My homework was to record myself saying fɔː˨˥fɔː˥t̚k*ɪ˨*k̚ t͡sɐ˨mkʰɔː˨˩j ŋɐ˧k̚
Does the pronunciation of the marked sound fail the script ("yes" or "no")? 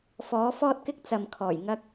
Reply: yes